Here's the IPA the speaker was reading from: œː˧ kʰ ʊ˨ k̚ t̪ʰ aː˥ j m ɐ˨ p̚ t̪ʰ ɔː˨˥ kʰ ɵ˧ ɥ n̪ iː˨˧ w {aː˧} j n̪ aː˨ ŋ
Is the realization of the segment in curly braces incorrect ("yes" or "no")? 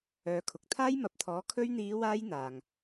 no